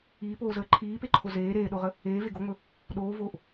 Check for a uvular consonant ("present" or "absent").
present